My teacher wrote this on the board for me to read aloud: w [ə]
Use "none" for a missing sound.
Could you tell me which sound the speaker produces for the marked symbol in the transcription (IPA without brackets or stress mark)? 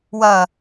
ɐ